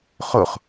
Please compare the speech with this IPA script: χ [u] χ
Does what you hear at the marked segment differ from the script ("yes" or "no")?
yes